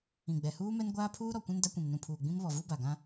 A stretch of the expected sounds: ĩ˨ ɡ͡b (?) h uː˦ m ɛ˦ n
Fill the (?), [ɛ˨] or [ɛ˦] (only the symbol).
ɛ˨